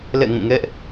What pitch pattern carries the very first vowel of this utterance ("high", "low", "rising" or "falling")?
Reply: falling